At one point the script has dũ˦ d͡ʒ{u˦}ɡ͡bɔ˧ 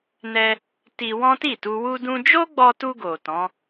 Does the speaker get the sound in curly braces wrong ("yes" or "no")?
yes